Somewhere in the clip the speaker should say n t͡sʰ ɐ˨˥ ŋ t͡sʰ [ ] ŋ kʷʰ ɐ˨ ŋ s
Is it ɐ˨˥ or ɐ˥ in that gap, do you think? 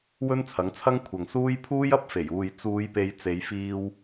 ɐ˥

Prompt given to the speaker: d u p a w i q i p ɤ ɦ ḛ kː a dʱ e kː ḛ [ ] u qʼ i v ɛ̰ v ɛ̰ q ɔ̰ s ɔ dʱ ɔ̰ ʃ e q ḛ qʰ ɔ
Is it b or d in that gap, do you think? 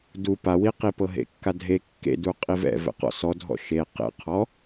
d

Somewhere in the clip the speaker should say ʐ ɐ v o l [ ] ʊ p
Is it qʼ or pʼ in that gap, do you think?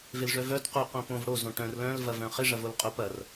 qʼ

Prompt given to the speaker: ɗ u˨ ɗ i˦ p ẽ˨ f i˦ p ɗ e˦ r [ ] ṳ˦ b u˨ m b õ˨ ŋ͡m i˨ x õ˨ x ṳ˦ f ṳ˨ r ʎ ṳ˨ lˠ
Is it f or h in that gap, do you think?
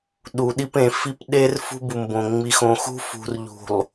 f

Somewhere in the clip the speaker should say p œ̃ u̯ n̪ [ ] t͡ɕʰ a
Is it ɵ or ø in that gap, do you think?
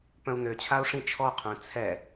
ø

